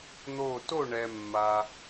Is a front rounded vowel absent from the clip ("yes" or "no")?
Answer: yes